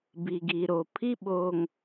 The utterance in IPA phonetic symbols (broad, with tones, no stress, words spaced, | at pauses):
bi˨ɡi˨ɾo˨ pʰi˦ɓoː˨ŋ